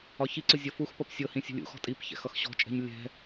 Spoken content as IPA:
ɒ ç i ǀ ʊ zʲ ʌ f u x p ʌ p sʲ ɤ h ĩ sʲ ṳ lʲ ṵ x ɔ̤ tʼ i p ç ɛ̰ x ʌ x ɕ ɔ̤ t͡ʃʼ ɛ̤ ɲ lʲ ɛ̤

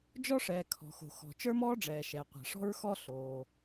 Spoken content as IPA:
d͡ʒ ɔ˥ ʂ ɛː˩ kʰ ɔ̤˩ x o̤˩ x ɔ̤˩ t͡ʃ ə˞˥ m ɔː˥ ɖ͡ʐ ɛː˩ ʃ ɛ˩ qʷ a̤˩ ʂ ɔ̤˥ ɹ x ɔ˥ ɬ oː˩

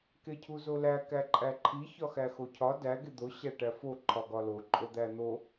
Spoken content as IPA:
k e cʰ u z o l æ k æ ǃʼ æ ǃʰ i ç ɒ x æ x o cʰ ɒ d æ ɡ e d̪ o ɕ æ ʈ æ f o ǃʰ ɒ ɡ ɒ l o ǃʼ o d̪ æ n̪ o

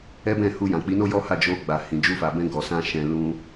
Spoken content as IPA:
ɛ˦ b ɛ̃˦˨ h u˧ j ã˨ k͡p i˨˦ n o˦ j ɔ˦ h a˦˨ d͡ʒ o˧ ɡ͡b a˨ h ĩ˨ d͡ʒ u˧ f a˨ b ɛ̃˧ ɡ ɔ˨ s ã˧ ʃ ɛ̃˧ l ũ˧

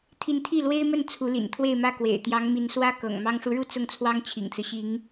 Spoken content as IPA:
t̪ʰ i˧˥ n t̪ʰ i˥˩ l w e˥ ɪ̯ m ə˥˩ n t͡sʰ u˧˥ l ḭ˨˩ n t̪ʰ w e˥˧ ɪ̯ m ä˥˩ k w ḛ˨˩ ɪ̯ t̪ j ɑ˧˥ ŋ m i˧˥ n s w ä˥ k ɤ̰˨˩ ŋ m ɑ˥ ŋ ʂ u˧˥ ɻ u˥ t͡s ʊ˥˩ ŋ t͡sʰ w ɑ˥ ŋ t͡ɕʰ ḭ˨˩ ŋ t͡s ɹ̩˦ ɕ i˧˥ ŋ

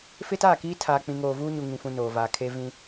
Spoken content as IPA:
f ɪ˦ t aː˦˨ k iː˦ tʰ aː˨ k͡p ĩ˨ ŋ oː˨ v uː˦ ɲ u˨ ŋ ĩ˨ f ũ˨ n oː˨ v aː˨ kʰ e˦ v ĩ˦

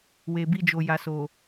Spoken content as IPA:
w e˨ b i˧ d͡ʒ o˨ j a˨ s o˨

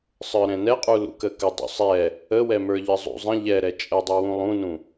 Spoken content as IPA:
sˤ ə˞ ɾ ɛ̃ n ɛ qʼ u l ṵ k ə k ə dˤ ṵ sˤ ɛ | ə w ɛ m ə˞ ʎ ə zˤ ṵ zˤ ə̃ ʎ ɛ ɾ ɛ t͡ʃʼ ə dˤ u w ũ lˠ ũ n ũ

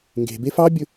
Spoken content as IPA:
ŋ ɡ e̤ b e f ɑ bʲ ɵ

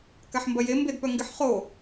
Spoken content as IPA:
k a ħ m b ɐ j e m b e d p œ ŋ ɡ ɪ ħ χ o

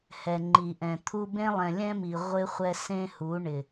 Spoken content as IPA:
h ɛ˨ ŋ͡ǃ i˨ ʔ ɛ̃˨ t̪ʰ u˦ b ẽ˦ lˠ ɛ̃˨ lʲ ɛ̃˦ m i˨ ʁʷ ɪ˦ χʷ ɛ˦ s ẽ˦ h u˨˦ ɳ ɪ˨

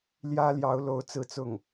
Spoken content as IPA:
l j ä˥ l j ɑ˧˥ ʊ̯ l o˧˥ ʊ̯ t͡s ɹ̩˥˧ t͡s ʊ˥˩ ŋ

